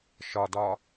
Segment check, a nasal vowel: absent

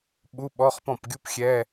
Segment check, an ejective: absent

